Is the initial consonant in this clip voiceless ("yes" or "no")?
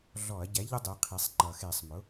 no